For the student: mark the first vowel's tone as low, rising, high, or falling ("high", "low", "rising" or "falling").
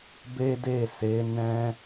high